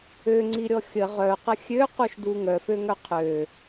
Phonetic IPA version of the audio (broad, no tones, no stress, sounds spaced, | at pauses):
ø ŋ͡ǀ i ɾʲ ɔ xʲ ə ʁ œ q ə xʲ ø q u ʃ d u ŋ œ f ø ŋ œ qʰ ø